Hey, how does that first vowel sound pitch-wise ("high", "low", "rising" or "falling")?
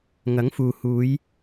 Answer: rising